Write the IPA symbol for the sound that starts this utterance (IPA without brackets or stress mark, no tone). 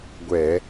ɡʷ